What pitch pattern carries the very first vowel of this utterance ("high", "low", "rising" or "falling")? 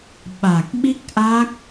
low